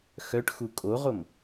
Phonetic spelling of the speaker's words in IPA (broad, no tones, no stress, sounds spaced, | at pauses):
x œ ʈ x u kʼ o ʁ o m